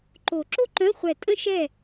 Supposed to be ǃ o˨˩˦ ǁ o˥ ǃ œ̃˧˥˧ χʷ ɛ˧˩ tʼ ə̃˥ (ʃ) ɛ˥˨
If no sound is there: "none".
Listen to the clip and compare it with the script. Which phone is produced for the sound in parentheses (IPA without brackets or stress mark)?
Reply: ʃ